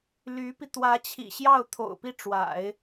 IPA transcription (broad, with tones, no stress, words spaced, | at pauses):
ly˧˥pi˧ t̪wä˧˥t͡ɕʰḭ˨˩ɕjɑ˥˩ʊ̯ t̪ʰo̰˨˩ʊ̯pi˥˩ʈ͡ʂwa̰˨˩˦ɪ̯